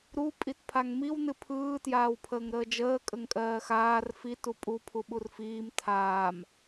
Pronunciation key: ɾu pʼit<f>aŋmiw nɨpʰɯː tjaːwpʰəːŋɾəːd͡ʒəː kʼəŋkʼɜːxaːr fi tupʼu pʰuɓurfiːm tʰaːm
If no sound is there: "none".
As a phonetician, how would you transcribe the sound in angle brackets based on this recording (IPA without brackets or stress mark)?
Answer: pʰ